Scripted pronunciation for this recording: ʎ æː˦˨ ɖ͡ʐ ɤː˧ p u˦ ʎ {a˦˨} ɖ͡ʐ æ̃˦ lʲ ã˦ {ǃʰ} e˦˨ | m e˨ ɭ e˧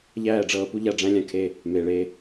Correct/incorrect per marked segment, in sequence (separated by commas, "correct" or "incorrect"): correct, incorrect